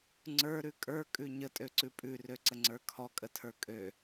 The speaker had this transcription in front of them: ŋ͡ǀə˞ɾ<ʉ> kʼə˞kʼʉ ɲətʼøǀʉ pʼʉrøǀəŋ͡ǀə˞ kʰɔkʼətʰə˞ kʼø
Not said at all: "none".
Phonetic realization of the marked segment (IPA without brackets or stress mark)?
ʉ